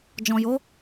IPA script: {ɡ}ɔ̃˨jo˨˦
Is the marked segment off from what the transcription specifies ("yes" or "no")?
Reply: yes